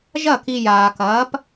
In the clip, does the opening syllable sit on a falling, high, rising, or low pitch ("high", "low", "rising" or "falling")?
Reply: falling